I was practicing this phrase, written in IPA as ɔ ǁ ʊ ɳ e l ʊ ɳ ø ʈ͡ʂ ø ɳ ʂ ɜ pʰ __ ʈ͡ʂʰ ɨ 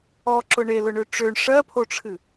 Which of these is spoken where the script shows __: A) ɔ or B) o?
B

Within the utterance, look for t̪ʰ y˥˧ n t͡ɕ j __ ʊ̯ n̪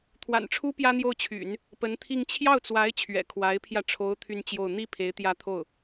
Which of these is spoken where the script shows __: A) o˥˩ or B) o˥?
A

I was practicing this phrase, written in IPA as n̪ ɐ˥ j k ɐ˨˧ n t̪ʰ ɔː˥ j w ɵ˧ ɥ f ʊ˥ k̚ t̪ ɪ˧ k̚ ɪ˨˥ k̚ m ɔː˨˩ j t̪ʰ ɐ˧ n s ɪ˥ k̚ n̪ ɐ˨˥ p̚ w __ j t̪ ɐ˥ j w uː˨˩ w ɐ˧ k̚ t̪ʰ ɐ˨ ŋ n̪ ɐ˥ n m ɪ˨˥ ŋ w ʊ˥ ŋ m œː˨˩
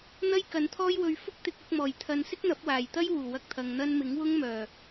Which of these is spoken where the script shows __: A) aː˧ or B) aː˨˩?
B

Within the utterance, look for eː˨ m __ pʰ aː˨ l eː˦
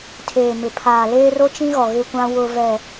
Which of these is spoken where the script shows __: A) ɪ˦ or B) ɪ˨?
B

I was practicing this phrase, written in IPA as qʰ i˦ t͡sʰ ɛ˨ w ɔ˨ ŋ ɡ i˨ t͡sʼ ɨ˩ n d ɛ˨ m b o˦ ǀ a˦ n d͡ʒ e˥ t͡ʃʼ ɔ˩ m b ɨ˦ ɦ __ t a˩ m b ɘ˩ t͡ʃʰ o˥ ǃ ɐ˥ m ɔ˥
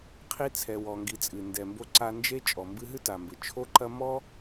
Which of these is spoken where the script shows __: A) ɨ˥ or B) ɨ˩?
A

